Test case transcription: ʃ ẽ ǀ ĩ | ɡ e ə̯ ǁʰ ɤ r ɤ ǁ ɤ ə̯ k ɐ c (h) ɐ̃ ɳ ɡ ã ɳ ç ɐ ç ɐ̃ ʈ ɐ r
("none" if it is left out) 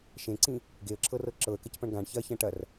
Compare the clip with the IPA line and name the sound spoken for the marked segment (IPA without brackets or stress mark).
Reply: p